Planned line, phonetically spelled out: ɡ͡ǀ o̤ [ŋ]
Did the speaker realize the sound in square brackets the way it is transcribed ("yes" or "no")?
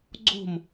no